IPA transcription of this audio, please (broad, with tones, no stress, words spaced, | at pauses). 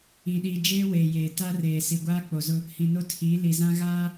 ĩ˨ɗiː˨ d͡ʒeː˦weː˨ jeː˨ ta˦reː˨ si˨ɡʷaː˦ k͡po˨zʊ˦ | hĩ˨no˦tʰiː˨˦ li˨zã˦ ɣaː˦